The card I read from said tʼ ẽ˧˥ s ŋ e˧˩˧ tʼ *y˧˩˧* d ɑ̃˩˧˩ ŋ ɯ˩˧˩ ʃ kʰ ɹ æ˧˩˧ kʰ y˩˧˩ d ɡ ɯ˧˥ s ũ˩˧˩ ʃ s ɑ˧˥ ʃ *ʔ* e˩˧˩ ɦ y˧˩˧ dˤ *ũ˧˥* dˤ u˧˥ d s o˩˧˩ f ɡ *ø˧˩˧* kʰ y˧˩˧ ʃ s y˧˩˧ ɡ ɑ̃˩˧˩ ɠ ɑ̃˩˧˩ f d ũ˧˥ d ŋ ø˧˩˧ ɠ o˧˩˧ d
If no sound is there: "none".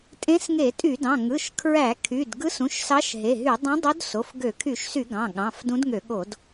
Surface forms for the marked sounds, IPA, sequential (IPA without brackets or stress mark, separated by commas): y˧˩˧, ɦ, ũ˧˥, ø˧˩˧